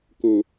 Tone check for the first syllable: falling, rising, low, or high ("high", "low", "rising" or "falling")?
low